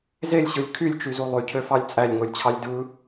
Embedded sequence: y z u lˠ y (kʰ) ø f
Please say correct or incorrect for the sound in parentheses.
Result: incorrect